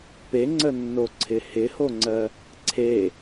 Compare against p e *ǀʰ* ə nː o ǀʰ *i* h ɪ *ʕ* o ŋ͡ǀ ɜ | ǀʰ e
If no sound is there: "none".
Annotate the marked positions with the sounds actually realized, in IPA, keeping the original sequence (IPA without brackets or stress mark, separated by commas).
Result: ŋ͡ǀ, ɪ, h